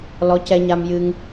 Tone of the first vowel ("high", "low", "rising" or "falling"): rising